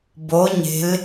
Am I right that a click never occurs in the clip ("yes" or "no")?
yes